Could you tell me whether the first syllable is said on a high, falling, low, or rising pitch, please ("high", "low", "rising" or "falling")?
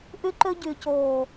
high